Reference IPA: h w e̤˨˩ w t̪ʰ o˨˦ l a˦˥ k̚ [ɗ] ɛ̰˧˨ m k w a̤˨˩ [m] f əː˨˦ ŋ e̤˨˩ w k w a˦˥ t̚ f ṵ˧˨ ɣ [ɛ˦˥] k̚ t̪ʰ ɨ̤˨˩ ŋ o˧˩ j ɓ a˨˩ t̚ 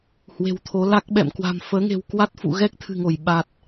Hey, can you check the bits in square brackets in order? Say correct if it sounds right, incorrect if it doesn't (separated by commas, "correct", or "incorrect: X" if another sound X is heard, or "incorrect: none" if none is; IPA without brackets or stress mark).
incorrect: ɓ, correct, correct